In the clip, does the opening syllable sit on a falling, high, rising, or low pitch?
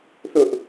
high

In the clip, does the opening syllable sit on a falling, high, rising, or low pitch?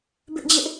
high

